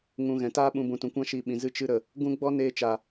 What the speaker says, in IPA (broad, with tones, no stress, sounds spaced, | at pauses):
ŋ ũ˨ ɣ ɛ̃˨ t aː˦ ɓ ũ˧ b ũ˨ t ũ˨ kʷ ã˦ ʃ i˧ ɓ ĩ˨ z ɨ˧ t͡ʃ ɨ˧ ɾ ə˨ | ɡ ũ˧ ɡ͡b ɔ˦ n eː˧ t͡ʃ a˨